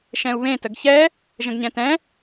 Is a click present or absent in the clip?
absent